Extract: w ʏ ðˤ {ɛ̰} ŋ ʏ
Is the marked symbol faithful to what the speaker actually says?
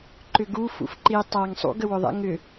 yes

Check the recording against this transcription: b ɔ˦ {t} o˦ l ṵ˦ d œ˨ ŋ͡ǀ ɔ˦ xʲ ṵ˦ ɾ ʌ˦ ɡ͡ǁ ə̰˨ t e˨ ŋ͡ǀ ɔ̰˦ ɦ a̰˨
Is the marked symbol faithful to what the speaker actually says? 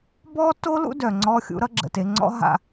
yes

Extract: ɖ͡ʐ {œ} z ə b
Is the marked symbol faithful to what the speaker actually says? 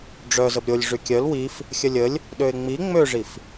yes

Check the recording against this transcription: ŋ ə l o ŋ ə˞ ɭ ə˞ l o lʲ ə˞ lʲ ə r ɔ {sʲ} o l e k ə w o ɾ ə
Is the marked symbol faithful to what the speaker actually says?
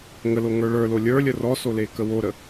no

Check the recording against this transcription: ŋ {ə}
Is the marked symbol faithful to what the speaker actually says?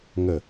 yes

